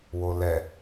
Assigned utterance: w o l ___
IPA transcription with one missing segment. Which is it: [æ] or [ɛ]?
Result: ɛ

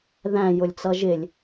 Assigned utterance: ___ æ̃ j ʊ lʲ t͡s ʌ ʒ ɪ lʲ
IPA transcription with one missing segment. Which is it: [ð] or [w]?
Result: ð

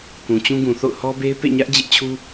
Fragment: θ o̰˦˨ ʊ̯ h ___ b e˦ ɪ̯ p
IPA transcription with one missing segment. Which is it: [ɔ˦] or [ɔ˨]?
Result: ɔ˦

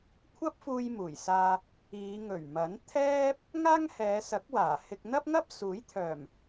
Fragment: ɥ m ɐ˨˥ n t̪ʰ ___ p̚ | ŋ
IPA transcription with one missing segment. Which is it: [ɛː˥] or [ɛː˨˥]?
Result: ɛː˥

